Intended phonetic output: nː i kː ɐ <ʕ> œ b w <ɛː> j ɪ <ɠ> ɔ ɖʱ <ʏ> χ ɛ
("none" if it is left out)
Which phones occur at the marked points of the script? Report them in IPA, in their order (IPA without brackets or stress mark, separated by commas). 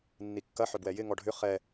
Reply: ħ, ɛ, ŋ, ʏ